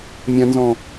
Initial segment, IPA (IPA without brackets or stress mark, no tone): mʲ